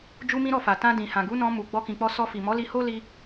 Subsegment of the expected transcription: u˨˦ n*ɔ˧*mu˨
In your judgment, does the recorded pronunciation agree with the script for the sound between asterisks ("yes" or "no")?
no